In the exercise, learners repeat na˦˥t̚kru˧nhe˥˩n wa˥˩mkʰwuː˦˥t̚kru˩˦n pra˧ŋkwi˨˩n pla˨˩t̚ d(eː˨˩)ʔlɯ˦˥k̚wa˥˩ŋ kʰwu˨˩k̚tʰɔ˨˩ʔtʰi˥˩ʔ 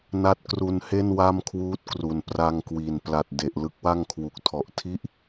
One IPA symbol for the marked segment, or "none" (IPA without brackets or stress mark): e˨˩